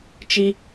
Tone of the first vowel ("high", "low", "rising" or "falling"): high